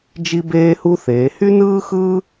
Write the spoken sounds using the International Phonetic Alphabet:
d͡ʒ i˥ b eː˥ h u˥ θ eː˨˦ h y˥ n ɯː˥ x ɯː˥

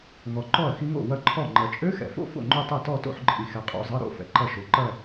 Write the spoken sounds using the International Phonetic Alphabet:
ŋ ɔ˨ ǃ ɔ˥˩ ɐ̯ x i˦˥ ŋ o̰˥˩ w ɐ˦˥ ǃʰ ɔ˥˩ ŋ͡ǃ ɐ˨ t͡ʃʼ ø˦˥ x ɛ̰˨ f o̰˥˧ f o̰˥˩ ŋ͡ǃ o˥˧ tˤ ɛ˥˩ t ɔ˥˧ t o̰˥˧ ħ ǃʼ i˨ x ɛ˨ qʼ o̰˨˦ zˤ ɐ˧˥˧ ɾ o̰˥˧ f ɛ̰˨ ǃ ɐ˥˩ ʃ o˨˦ ǃ ɐ˥˧

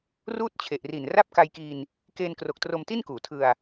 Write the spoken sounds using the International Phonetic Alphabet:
r uː˥˩ t̚ t͡ɕʰ e˨˩ ʔ r i˨˩ n r a˥˩ p̚ k a˧ j k i˧ n | k eː˧ n k r o˨˩ k̚ t r o˧ m t i˥˩ n k uː˨˩ tʰ ɯ˧ a̯

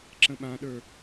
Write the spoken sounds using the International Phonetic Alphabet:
ǁ ə̃ ɓ ã ɗ ə˞

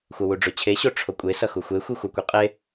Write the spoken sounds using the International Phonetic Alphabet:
xʷ ʌ w u ɖ͡ʐ o t͡ɕʰ e ɕ o ʈ͡ʂʰ o kʷʼ e s ʌ x u xʷ e xʷ i xʷ ʌ kʷ e qʼ e

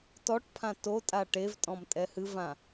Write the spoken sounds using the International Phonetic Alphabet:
t ɔ ʈ pʰ ã t o tʼ a ʈ e v tʼ ɔ̃ m tʼ ɛ h ɨ v ã

